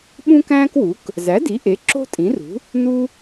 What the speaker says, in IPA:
ɓ ũ˥ k æ̃ː˥ k w u˩˥ k | z æ˩˥ d i˩˥ ʔ e˩˥ ǁ o̤˥ tʼ ĩ˩˥ r ṳ˩˥ | n u˥

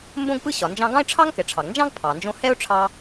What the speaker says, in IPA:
m b õ˥ ɡ p ɯ˥ ɕ ɒ˩ n d͡ʒ ɑ̃˧ ɡ ɑ̃˥ ɪ̯ ʈ͡ʂʰ ɑ˥ ŋ k ɛ˩ ʈ͡ʂʰ ɑ˩ ɡ n d͡ʒ ɑ̃˥ ɡ pʰ ɑ˩ n d͡ʒ õ˥ h ɛ˥ ʊ̯ ʈ͡ʂʰ ɑ˧

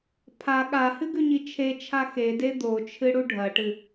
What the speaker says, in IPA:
pʰ a ɠ a h ɨ ɡ ʉ ɲ i t͡ʃʰ e t͡ʃʰ a x e d e d̪ o t͡ʃʰ ɨ ɽ u ɖʱ ɐ ʈ ɨ

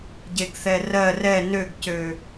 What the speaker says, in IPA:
ɟ e ɡ θ ɛ r ɜ r ɛ n ø ɡ c ø

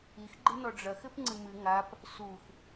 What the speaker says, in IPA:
i x ɡ͡ǃ ɨ n ɔ ɖ͡ʐ ɐ x ɘ p ŋ͡ǀ ɨ m ɨ ŋ a p | s u x

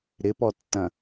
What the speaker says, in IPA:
ɾ ɪ p ɔ tː ɐ̃

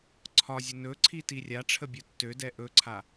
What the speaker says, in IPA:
ǀʰ ɒ zʲ ə n ɵ ǀʰ i t i rʲ a ʈ͡ʂʰ ə bʲ u tː ø d ɛ ʔ ɵ ǀʰ a

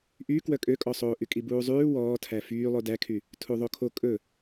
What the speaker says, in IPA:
ʔ y k w œ kʼ ø kʼ ɔ sˤ oː ʔ y kʼ i b uː zˤ ʉː w ɔː tʰ æ f yː lˠ o d æ kʰ y | tʰ u ðˤ o kʰ o kʼ ɵ

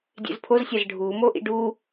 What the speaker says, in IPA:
dʲ ḛ z pʰ o z sʲ æ z ɖʱ uː m o ʔ ḭ ɖ u

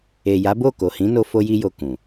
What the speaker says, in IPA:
e˨ j a˨˦ b o˦˨ k o˨ h ĩ˨˦ n o˧ f o˧ j i˧ j o˨ k ũ˨

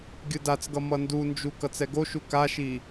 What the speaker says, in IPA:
ɡʲ ɯ d a t͡s ɡ ʌ m ʌ n d u n d͡ʒ u k ʌ t͡s ɛ ɡ o ʃ u k a ʃ i

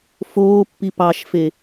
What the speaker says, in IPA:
f oː pː i p ɑ ʃ f e

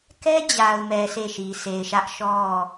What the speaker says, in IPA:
k ɛ˦ d͡ʑ a˨ ʊ̯ m ɛ˨ s e˦˨ ʃ i˨ sʰ e˨ ɪ̯ ʃ ä˦ ʔ ʃ ɔ˦˨

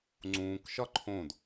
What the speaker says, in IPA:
ŋ͡ǀ ũː k ʃ ɒ ǃʰ õ d

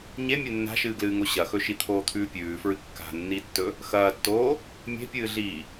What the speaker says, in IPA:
ɲ e mʲ e nː a̤ ʃ ɨː ɡ l ɨː ŋ o ɕ ɐ x ɵ ʃ i t̪ʰ oː t̪ʰ ʉː pʲ ʉː f ɹ ɨ kː a̤ nː i tː ɵ | x ɐː tː oː | mʲ e̤ pʲ ɨː ɮ iː

